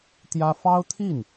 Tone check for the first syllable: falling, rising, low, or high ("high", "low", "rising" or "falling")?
high